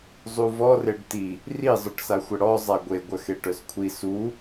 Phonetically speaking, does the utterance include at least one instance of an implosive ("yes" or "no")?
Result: no